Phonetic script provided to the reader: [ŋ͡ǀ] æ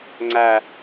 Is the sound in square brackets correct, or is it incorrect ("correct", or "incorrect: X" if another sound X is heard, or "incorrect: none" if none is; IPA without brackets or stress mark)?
correct